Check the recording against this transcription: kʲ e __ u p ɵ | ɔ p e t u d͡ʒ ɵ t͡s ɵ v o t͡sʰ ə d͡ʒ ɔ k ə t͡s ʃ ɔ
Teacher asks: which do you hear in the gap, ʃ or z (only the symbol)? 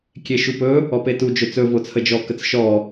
ʃ